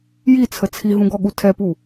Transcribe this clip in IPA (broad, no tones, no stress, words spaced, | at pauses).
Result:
jit͡sʰə t͡sʰiɦũɡɔɠu tʰɛpu